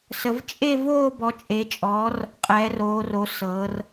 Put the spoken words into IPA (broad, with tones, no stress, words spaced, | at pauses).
sə˨˦v t͡ʃʼe˥˧ voː˥˧bɔ˨˦t͡ʃʼe˨˦t͡ʃʼɔː˨˦r | qʼɛː˨˦roː˨˦ro˨˦ sɤː˨˦r